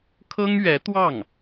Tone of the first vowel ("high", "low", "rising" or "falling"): high